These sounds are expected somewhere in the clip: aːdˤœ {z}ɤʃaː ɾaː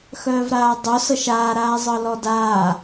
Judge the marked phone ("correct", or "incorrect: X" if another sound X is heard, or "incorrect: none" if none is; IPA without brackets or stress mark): incorrect: s